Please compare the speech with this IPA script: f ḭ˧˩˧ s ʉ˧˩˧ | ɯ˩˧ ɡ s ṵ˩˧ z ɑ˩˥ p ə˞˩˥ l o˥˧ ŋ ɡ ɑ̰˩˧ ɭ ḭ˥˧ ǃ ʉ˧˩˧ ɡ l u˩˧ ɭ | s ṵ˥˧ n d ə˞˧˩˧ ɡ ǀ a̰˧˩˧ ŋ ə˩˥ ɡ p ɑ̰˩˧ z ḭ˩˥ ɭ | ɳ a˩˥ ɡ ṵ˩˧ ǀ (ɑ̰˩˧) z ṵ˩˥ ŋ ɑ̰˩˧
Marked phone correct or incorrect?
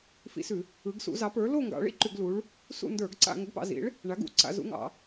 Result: incorrect